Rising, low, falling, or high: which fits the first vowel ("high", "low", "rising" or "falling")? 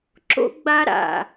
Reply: low